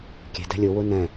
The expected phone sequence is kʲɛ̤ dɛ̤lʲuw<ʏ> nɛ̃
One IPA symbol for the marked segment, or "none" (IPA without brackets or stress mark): u